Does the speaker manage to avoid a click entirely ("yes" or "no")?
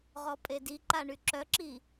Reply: no